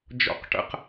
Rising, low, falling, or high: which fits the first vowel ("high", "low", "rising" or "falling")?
falling